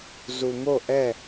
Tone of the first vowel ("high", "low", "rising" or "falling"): low